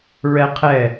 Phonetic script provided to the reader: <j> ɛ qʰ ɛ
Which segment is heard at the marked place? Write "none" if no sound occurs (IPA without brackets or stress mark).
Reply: ɹ